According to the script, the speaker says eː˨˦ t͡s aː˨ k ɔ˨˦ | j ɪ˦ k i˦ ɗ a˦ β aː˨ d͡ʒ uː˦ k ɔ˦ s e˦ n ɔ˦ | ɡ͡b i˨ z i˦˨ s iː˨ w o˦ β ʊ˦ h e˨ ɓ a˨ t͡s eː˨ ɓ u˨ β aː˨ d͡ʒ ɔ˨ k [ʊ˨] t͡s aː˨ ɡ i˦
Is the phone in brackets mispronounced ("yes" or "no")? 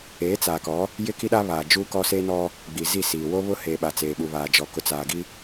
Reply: no